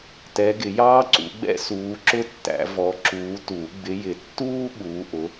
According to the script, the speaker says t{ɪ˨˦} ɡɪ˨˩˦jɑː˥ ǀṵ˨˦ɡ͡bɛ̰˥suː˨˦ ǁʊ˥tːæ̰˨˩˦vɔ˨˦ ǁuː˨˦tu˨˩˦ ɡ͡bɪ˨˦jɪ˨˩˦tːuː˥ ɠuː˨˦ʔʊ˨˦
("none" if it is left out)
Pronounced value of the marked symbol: ɛ˨˦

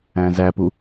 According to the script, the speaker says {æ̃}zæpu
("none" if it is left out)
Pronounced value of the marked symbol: æ̃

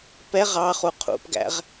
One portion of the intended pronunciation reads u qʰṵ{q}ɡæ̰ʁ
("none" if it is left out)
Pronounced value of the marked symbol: p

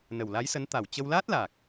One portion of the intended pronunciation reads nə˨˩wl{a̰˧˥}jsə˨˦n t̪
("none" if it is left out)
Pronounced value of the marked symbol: a˨˦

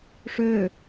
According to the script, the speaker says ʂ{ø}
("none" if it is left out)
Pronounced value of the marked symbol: ø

